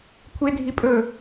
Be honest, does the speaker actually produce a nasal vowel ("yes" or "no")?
no